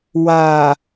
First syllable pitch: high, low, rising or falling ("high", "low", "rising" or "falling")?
low